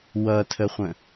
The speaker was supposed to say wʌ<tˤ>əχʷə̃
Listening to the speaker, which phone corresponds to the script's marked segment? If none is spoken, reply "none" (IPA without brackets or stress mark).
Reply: tʰ